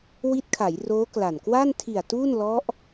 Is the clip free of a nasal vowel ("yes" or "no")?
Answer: yes